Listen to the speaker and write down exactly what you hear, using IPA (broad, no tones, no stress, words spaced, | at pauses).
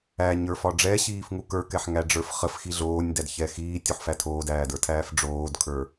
æɲə˞fɒ ɖ͡ʐɛɕiːfŋu kə˞kɛħŋæɖ͡ʐə˞f χəfxi ɮoːnʲdædçɛ xiːtʲuħfæ tʰoːdæːdə˞tʰæːf ɖ͡ʐoːdkʰə˞